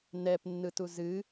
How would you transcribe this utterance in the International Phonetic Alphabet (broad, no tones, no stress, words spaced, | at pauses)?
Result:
nɛpnːɯtu zɨ